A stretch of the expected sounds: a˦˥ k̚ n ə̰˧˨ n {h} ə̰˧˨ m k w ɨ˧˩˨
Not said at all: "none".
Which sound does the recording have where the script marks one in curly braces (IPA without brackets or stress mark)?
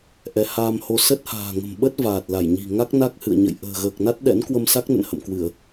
h